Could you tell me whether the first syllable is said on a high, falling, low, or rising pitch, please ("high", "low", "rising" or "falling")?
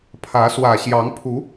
rising